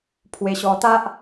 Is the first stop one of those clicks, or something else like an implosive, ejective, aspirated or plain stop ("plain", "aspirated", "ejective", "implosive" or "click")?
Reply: aspirated